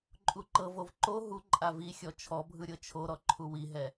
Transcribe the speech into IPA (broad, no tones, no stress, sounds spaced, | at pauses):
ǃʼ u ǃ ɤ v o v ǃ o ɦ u ǃʼ a v i xʲ ɔ t͡ʃʰ ɔ bʱ ɯ ɾʲ ɤ t͡ʃʰ o ɾ ɔ ǃʰ u w i ɦ ɛ